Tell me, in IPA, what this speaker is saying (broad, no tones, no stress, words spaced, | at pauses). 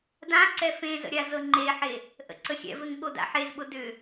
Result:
dãǀɛ fẽzə̰ ɾʲazɤŋ͡ǃeħe | ʔə̰ǀəxʲɛ̰vɘŋ ɠoda̰ħezɓʊ dʏ